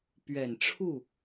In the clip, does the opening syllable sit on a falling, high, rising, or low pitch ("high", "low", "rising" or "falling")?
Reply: low